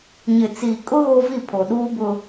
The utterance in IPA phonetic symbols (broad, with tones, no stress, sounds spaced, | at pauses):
ɲ ɪ˨ t͡s iː˨ kʼ ʊ˦ ɣ o˦ v i˦˨ pʰ o˨ ɗ uː˦ b ʊ˦